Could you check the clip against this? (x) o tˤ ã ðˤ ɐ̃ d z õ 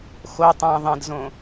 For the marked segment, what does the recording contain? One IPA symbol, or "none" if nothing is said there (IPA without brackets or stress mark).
x